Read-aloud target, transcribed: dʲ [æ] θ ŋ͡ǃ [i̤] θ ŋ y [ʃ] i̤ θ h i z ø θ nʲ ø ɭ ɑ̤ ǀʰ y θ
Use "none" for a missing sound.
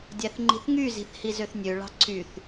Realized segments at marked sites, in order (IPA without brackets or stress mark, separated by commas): æ, i̤, z